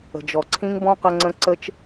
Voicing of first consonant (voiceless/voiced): voiced